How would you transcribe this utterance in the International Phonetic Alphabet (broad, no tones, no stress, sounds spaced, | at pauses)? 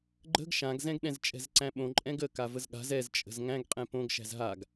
ɡ͡ǃ ə̤ ɡ ʃ ã ɡ z ɛ̃ ɡ ɗ ɛ̃ z t͡ʃʼ ɛ̤ z ǀ æ̃ ɓ õ ǃʼ ɛ̃ ɡ ə k a v ə z ɠ a̤ z ɛ z t͡ʃʼ ə̤ z ŋ æ̃ ɡ qʼ ɛ̃ p õ ɡ ʃ æ̤ z ɦ a ɡ